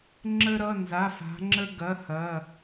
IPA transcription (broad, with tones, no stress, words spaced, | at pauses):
ŋ͡ǁə˥ɾʌ˧˥˧nza˧˥˧fa̤˧˥ ŋ͡ǁə˥ɡɐ˧˥˧ hɐ˧˥˧